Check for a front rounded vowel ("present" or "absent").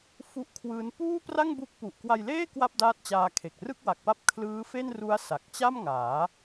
absent